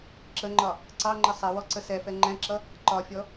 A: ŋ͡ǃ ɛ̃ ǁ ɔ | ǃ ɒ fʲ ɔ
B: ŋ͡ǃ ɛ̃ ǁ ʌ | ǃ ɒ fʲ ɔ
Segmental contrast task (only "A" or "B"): B